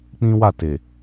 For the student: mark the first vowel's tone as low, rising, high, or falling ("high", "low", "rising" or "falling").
high